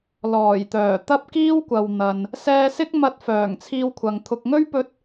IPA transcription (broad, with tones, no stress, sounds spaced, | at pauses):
l ɔː˨˩ j t̪ œː˨˩ t̪ ɐ˥ p̚ k iː˥ w kʷ ɐ˨ w n̪ ɐ˨ n | s ɛː˧ s ɪ˥ k̚ m ɐ˧ t̚ f œː˨˩ ŋ t͡sʰ iː˧ w kʷʰ ɐ˨ ŋ t̪ʰ ʊ˨ k̚ ŋ ɵ˥ ɥ p ɵ˧ t̚